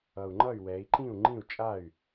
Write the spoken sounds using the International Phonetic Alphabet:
ʌ˨˩ u̯ ŋ͡ǃ ʌ˥˩ y̯ w ɛ˩˧ i̯ ǃ ĩ˥˩ u̯ ŋ͡ǃ ĩ˥˩ u̯ t͡ʃʼ a˥˩ y̯

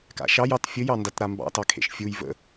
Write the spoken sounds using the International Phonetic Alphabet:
k a̰ ʃ ɑ j ɑ t fʲ ə j ɑ n d a t ɾ a m b ɑ̰ t ɑ kʰ ḛ ʃ fʲ u j v ə̰

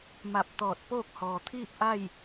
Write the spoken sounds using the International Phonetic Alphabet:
m a˧˩ p̚ t̪ ɔː˧˩ t̚ p oː˥˨ k̚ h ɔː˩ t̪ʰ iː˥˨ p̚ ʔ a˥˨ j

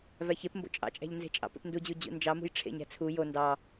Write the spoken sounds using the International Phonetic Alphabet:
v æ ç e p m b o̰ t͡ʃʼ ɑ̰ t͡ʃʼ æ̤ ʎ n z e̤ t͡ʃʼ ɑ̰ p ḛ p n d u d͡ʑ u d͡ʑ ṵ n d͡ʒ ɑ m ṳ j ʈ͡ʂʰ ḛ ɲ æ̤ t͡sʰ u j o n d ɑ

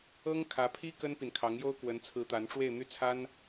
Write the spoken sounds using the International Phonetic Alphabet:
ɤ˥ ŋ kʰ ä˧˥ pʰ i˥ k ə˥ n p i˨ n kʰ ɑ˧˥ ŋ j o˥ ʊ̯ k w ə˧˥ n t͡sʰ ɹ̩˧˥ t̪ a˧˥ n ʈ͡ʂ w e˥˧ ɪ̯ n̪ y˥˩ t͡sʰ a˥ n

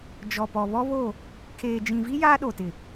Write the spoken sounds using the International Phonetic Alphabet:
d͡ʒ ɔ˨ p ɔ˨ β ɔ˦ β o˦˨ | kʰ eː˨ d͡ʒ ĩ˨ v i˦ j aː˦ ɗ o˨ t ɪ˨

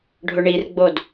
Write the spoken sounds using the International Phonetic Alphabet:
ɖʱ ʊ ɳ i r ɡ͡b o d

